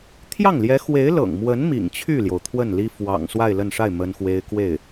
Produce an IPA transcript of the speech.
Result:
t̪ʰ j ɑ˥˩ ŋ l j ɛ˧˥ x w e˧˥ ɪ̯ l ɤ̰˨˩ ŋ m w ə˧˥ n m ḭ˨˩ ŋ t͡ɕʰ y˥˩ l j o˩ ʊ̯ t̪ʰ w ə˥˩ n l i˥ f w ɑ̰˨˩ ŋ s w a˥˧ ɪ̯ l ə˥˧ n ʂ a˥˩ ɪ̯ m ə˥ n x w e˥ ɪ̯ k w e˥˩ ɪ̯

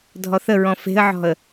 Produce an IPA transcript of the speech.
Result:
dʱ ɔ θ ə ɹ ɔ̃ f e̤ ə̯ ʕ ɔ̤ ə̯

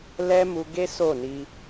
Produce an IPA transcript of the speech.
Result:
l ɛ˦ m u˧ ɡ e˦ s o˦˨ n i˧

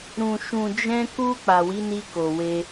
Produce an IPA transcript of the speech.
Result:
ɾ ũ˨ ʃ ũ˨ d͡ʒ ɛ̃˧ k u˧ k͡p a˨ w i˨˦ n i˧ k o˨ w e˧

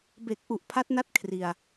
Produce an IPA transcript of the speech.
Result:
b e˨˩ k̚ ʔ u˨˩ ʔ pʰ a˦˥ t̚ n a˥˩ t̚ kʰ r i˧ a̯

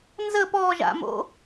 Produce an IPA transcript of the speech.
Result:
n z ə p ɔ ʒ a̰ m o̰

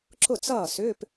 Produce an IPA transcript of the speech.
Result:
ǁ ʊ˥˩ t͡s ʌː˥˩ s ʏː˧˥˧ p

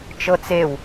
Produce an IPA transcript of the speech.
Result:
t͡ʃ ɤ t͡s e w

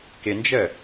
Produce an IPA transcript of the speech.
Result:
k ɪ n d͡ʒ ə

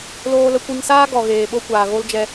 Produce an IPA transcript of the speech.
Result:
l oː˧ l ə˧ kʷ i˧ ŋ s aː˦ ɡ ɔ˨ ɣ eː˨ ɓ o˦ kʷ aː˨ ɣ o˦ l d͡ʒ ɛ˧

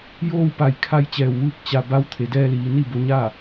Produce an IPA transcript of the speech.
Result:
j oː˥˨ w p a˧˩ j kʰ a˧ j t͡ɕ ɛː˧˩ w ʋ ɯː˥˨ k̚ t͡ɕ a˧ b a˧˥ w t̪ʰ e˩˧ d ɛː˧ l iː˩˧ n i˥˨ b o˧ ɲ a˥˨

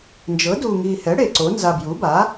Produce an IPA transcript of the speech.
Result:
n d͡ʒ ɤ˩˥ d u˨˩ ŋ i˨˩ h ɛ˩˥ ɽ e˨˩ ǀ o˩˥ n z a˨˩ b j u˩˥ b a˩˥

